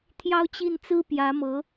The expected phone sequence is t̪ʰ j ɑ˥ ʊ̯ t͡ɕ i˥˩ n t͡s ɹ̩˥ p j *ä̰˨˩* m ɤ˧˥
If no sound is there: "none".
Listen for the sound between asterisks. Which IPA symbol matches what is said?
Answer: ä˧˥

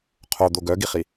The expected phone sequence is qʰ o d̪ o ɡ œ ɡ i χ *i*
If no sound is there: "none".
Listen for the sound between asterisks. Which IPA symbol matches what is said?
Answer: i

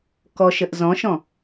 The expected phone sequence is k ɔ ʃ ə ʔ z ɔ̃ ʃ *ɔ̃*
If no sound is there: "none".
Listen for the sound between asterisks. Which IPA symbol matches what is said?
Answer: ɔ̃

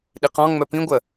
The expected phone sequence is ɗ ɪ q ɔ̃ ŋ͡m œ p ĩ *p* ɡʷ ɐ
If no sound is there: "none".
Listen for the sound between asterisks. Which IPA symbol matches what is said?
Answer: none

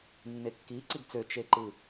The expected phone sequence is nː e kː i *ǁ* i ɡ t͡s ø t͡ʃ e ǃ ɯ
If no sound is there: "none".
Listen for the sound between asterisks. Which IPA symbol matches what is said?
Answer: ǀ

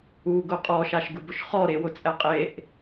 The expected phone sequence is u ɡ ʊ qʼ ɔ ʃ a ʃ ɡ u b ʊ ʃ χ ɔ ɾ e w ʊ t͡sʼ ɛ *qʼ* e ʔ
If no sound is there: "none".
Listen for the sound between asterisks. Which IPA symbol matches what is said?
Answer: qʼ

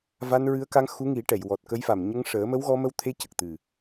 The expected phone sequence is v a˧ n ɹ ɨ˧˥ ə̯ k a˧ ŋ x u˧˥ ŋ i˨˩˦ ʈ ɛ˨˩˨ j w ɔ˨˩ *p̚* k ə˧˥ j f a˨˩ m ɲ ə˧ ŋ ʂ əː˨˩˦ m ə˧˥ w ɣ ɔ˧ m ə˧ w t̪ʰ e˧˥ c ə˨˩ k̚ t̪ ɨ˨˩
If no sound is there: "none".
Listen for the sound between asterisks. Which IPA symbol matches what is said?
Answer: t̚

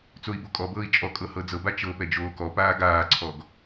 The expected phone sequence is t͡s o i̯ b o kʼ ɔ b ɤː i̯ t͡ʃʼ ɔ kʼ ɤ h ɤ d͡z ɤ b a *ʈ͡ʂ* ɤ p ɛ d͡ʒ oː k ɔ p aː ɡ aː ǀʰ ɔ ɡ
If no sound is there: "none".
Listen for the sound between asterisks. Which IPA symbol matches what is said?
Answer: t͡ʃ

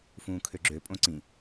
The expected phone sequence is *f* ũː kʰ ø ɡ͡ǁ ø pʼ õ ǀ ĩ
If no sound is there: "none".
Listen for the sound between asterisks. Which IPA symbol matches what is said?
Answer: f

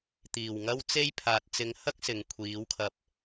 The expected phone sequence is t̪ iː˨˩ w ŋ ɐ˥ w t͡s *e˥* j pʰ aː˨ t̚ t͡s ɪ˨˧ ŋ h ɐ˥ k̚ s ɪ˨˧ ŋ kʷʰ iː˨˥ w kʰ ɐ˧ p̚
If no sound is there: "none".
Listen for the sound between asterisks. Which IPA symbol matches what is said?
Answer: e˥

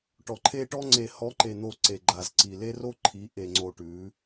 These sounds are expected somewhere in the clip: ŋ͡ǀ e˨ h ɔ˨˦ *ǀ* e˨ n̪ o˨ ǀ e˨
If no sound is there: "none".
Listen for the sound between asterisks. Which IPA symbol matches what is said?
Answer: ǃ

